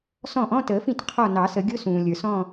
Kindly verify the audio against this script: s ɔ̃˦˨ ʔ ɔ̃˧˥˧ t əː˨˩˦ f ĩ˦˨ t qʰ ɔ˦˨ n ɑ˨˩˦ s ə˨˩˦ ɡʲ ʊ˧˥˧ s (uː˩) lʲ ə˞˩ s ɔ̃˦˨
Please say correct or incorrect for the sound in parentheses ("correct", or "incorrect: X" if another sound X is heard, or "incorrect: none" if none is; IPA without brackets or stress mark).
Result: incorrect: ũː˩